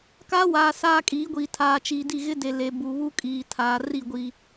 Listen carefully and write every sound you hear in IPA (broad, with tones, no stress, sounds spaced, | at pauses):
k aː˦ w aː˨ s aː˦ kʼ iː˨˦ ɡʷ iː˨ tʰ aː˨ t͡ʃ iː˨ d i˦˨ ɣ ɪ˦ d e˨ l e˨ b u˨ β u˦ kʼ iː˨ tʰ aː˨ r i˦˨ ɡʷ i˨